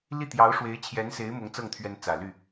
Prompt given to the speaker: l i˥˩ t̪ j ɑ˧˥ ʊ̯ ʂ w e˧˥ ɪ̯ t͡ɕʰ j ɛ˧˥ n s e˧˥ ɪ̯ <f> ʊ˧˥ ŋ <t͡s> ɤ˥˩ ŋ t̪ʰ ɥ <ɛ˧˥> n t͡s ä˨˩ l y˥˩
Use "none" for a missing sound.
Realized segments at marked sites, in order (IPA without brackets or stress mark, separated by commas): m, t͡s, ɛ˧˥